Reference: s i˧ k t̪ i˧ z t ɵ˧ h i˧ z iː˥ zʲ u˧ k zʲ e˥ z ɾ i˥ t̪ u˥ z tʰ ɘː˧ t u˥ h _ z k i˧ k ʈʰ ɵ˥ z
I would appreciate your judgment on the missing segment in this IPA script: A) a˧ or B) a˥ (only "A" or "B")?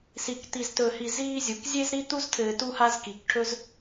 B